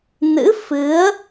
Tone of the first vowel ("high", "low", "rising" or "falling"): rising